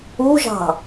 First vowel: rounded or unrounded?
rounded